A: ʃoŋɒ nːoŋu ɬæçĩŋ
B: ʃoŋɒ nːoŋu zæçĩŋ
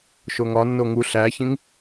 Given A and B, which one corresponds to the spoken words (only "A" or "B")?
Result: A